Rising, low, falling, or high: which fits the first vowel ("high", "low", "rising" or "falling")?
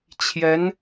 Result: rising